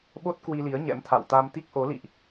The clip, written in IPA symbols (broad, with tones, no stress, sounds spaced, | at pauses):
ɓ o˦˥ t̚ k w i˧ l i˨˦ ə̯ ɲ ɛ̰˧˥ m t̪ʰ a̰˧˨ w t̪ a˧ m t̪ i˦˥ k̚ ʔ o˨˦ l ḭ˧˨ ʔ